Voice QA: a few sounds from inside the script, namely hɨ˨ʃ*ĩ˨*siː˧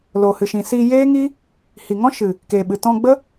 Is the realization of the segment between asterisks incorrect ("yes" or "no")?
no